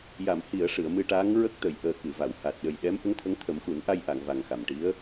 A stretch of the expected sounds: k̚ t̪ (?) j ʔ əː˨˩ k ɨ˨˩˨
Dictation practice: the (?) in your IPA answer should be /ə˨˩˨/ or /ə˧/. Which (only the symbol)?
ə˨˩˨